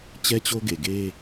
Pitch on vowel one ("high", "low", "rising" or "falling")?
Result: high